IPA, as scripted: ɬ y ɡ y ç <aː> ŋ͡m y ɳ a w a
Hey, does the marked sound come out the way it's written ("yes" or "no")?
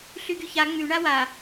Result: no